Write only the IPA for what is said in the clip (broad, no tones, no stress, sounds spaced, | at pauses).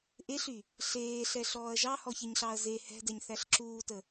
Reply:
ʔ e ɬ y | ɬ eː ɬ ɛ ɬ ɔː ɐ̯ ʒ ɑ h ɔ ç e ɲ ɬ ɑ ɐ̯ z e h ɛ̤ d ɛ ɲ θ æ ɬ ǁ uː t ə